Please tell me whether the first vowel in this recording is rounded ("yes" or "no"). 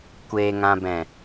no